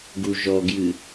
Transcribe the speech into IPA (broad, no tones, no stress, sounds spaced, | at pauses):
ɡ u ʒ ɔ ɡ j ɨ